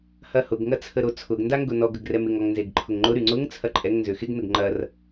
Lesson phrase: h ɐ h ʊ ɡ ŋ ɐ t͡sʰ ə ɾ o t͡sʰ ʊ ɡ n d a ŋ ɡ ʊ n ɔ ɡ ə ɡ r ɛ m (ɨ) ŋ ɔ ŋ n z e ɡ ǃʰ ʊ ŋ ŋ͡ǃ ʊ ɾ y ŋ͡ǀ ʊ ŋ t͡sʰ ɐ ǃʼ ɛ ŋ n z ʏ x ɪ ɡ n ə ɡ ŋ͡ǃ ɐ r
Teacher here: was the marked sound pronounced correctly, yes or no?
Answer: no